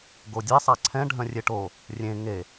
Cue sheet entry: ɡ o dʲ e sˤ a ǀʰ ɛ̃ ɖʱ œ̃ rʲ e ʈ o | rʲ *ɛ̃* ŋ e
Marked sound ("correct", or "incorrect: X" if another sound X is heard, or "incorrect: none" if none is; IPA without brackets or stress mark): incorrect: ẽ